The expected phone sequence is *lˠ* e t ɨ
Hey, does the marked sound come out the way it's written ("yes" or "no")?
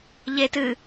no